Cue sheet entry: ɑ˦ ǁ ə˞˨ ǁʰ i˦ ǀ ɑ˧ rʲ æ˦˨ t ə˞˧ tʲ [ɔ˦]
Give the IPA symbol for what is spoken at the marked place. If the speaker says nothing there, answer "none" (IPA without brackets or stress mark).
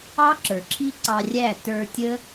ə˦